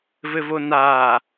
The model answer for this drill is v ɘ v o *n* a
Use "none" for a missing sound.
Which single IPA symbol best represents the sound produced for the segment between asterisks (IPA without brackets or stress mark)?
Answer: n